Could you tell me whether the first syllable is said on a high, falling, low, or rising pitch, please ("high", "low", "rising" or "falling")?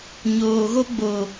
low